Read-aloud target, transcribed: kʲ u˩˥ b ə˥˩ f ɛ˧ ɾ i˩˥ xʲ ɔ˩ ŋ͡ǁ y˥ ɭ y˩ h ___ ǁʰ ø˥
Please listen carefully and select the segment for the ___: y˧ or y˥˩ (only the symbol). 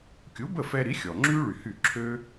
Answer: y˥˩